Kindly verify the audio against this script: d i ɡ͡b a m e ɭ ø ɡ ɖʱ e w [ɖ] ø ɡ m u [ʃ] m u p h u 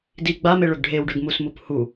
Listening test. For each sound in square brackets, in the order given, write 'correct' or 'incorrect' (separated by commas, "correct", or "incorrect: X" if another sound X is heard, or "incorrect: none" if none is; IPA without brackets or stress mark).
correct, incorrect: s